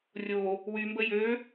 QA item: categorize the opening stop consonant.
plain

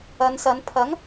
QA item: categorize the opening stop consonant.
aspirated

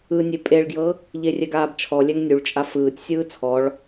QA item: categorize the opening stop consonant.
ejective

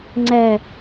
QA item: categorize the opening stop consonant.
click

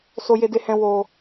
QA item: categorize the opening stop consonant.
plain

